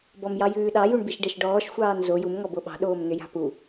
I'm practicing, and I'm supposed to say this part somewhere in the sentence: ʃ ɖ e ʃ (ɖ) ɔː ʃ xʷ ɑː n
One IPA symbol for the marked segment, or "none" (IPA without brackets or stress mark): ɖ